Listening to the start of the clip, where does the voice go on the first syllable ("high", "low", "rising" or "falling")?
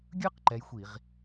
high